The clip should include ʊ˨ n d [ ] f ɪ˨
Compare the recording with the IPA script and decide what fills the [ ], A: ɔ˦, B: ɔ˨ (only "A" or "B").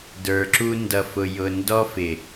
A